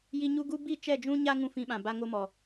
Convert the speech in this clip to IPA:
j i˧ ɲ u˦ ɡ u˦ b i˦˨ t͡ʃ ɛ˦˨ d͡ʒ ũ˦ ɲ a˦ ŋ ũ˦ f ĩ˧ ɓ ã˨ b a˧ ŋ o˧ m ɔ˨

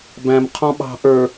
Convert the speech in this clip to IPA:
b æ̃ m qʰ ɔ̃ ɓ ɑ̤ ʔ ə˞

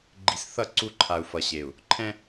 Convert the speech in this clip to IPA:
ɡ͡ǃ i̤˨ s θ ʌ˦˨ ǀ u˦ ǃʰ a˨ u̯ f ʌ˨ ɕ e˨ u̯ | ǃʰ ɛ̃˦

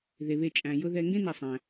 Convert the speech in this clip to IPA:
ð e˩ β e˨ t͡ʃʼ æ̃˩ j ʊ˨ ð ɛ˨ ŋ ɡ ẽ˥ n ɛ˨ sˤ æ̃˩

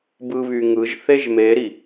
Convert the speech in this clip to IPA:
b ɯ β y ŋ ɯ ʒ θ e ʒ m e ɾ i

